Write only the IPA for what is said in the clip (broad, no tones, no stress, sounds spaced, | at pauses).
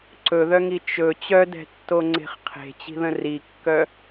ǀ ɵ ð œ ŋ i t͡ʃ ɵ t͡ɕ œ d ɛ̤ tː o ŋ͡ǀ e̤ χ qʰ e̤ t͡ɕ i̤ ð ə̃ r i kː œ